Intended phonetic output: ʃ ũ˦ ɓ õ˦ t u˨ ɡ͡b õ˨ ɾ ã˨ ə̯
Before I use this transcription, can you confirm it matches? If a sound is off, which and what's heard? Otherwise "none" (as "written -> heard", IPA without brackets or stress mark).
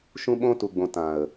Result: ɾ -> t